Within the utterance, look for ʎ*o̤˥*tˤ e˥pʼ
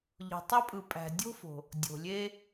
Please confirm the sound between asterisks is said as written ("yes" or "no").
no